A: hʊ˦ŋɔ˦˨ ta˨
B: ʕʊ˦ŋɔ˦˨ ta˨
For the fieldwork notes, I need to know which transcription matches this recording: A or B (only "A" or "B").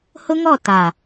A